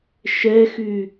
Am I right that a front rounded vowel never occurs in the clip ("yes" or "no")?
no